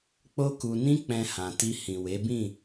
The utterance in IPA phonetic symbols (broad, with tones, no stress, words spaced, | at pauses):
k͡po˦ku˧nĩ˦ k͡pɛ̃˧hã˨ ti˧ hĩ˨we˨˦ bĩ˦˨